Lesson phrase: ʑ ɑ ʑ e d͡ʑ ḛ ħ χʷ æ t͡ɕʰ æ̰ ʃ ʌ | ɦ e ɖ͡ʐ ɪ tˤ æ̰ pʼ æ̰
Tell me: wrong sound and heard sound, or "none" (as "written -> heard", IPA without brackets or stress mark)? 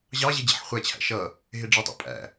none